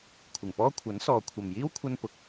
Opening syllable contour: low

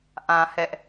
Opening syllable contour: high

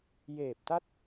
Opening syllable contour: low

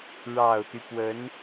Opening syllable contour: low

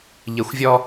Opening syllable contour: low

